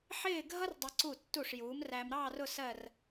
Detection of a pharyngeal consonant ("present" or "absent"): present